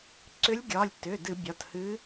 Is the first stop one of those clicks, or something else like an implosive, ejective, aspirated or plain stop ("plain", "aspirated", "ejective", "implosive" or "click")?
click